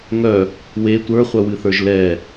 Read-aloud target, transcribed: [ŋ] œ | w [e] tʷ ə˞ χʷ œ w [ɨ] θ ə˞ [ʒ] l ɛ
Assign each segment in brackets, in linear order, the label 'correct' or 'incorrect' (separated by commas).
correct, correct, correct, correct